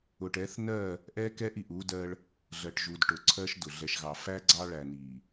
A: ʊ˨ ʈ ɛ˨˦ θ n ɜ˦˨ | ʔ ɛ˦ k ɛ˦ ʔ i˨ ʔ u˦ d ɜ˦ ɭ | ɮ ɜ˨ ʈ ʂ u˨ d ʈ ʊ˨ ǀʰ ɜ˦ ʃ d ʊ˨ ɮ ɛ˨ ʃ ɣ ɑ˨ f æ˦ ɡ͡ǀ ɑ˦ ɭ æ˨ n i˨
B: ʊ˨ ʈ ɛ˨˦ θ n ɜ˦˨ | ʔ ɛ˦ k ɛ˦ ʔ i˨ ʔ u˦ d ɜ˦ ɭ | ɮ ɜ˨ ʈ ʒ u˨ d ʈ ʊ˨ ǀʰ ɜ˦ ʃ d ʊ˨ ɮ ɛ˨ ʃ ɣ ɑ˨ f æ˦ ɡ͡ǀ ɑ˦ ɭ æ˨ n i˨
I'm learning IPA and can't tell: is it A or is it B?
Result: B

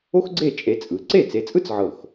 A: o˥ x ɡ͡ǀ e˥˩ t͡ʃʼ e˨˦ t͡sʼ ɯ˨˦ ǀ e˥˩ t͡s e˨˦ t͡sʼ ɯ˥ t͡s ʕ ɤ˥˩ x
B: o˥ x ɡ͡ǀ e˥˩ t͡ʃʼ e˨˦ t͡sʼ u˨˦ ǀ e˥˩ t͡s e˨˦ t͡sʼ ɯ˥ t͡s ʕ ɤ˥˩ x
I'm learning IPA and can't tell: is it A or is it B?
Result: A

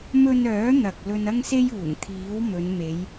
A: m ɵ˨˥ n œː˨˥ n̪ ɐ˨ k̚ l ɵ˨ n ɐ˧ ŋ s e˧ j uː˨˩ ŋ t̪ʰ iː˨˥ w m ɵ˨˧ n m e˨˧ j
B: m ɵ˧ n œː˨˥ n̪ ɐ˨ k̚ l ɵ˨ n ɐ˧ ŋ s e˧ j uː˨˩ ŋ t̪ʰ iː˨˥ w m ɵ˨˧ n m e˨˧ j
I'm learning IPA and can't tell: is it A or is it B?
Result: B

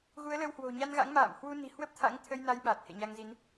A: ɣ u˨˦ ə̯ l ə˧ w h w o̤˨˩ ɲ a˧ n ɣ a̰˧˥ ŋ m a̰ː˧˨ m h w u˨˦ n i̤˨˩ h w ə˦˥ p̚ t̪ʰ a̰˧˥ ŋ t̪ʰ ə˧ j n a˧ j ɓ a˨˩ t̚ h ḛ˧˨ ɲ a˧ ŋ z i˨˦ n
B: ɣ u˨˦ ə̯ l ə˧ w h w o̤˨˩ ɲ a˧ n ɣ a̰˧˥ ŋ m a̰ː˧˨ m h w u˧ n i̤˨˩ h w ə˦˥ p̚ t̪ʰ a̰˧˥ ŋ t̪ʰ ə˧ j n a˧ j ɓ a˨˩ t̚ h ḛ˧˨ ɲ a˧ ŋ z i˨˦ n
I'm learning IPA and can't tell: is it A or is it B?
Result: B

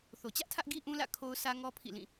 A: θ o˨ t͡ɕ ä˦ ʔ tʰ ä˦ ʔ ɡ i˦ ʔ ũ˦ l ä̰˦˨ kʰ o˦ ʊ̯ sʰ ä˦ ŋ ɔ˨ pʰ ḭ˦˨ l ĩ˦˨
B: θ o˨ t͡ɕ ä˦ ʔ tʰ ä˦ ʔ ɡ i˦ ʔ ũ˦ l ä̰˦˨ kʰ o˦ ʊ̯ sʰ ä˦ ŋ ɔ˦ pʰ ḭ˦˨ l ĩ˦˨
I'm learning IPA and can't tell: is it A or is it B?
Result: B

